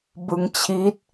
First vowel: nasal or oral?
oral